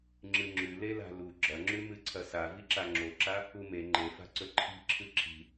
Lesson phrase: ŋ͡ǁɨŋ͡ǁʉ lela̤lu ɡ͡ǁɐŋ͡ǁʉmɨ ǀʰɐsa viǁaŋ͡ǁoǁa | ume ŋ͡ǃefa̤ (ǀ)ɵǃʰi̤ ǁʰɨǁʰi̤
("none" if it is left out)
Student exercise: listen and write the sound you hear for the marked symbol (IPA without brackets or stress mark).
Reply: ǀ